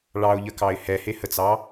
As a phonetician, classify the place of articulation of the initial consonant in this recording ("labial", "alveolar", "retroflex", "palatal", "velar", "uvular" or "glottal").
retroflex